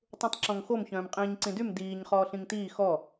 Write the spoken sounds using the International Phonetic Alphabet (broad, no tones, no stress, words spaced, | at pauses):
tˤũtˤǁɔ̃ŋxom çœ̃ːmqʼĩːɲǀĩdym diːɲ χɔːɬĩŋtiː xɔ